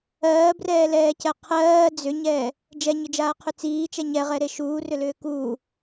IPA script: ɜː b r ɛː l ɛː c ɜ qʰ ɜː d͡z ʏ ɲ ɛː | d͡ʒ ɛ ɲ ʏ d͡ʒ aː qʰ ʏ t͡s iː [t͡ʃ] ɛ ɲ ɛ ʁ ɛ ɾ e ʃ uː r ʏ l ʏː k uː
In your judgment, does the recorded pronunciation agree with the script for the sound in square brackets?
yes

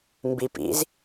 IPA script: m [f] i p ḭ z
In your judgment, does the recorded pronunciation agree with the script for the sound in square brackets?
no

